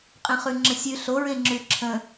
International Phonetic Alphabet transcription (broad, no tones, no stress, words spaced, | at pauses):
qʼẽχʉŋ͡ǁə̃sʲʉ ɬoɹẽŋ͡ǁʉ ǁʰə̃